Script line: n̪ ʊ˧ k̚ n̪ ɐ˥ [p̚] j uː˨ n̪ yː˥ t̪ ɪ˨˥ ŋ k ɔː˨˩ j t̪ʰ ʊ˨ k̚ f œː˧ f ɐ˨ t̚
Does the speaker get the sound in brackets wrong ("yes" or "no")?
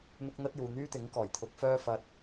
yes